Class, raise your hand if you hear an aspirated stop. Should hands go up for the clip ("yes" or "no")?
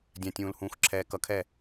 yes